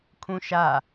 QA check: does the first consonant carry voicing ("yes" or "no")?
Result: no